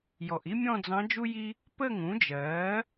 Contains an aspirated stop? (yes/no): no